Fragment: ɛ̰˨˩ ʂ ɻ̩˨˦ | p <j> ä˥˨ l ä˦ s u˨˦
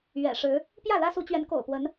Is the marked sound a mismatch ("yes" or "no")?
no